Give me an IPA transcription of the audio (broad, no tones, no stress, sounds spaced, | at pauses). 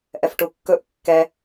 ʔ ɛ f ʈ u kː ɵ ʔ kː ɛ